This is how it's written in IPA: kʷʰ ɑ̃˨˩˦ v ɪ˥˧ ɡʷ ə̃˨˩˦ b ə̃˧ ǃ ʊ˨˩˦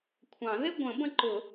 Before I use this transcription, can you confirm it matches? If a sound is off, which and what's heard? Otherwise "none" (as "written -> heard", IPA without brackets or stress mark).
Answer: v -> ð